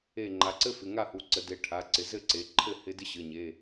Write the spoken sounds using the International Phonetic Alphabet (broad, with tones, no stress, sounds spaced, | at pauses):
e˧˩ ŋ͡ǃ a˩˧ ǀ ɘ˥ f ɪ˩˧˩ ŋ a˥˨ h u˩˧˩ ǀ ə˩˧ d e˩˧ ʈʰ a˩˧˩ ǀ ɪ˩˧ z ɘ˥˨ ǀ e˩˧ ǃʰ ɘ˥˨ h ɪ˥ d ɪ˥ ɕ ɘ˩˧˩ ɲ e˩˧˩